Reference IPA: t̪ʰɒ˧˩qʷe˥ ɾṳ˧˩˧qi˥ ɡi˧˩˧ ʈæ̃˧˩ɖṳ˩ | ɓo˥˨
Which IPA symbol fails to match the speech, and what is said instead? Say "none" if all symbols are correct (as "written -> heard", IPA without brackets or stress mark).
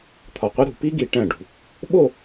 q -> p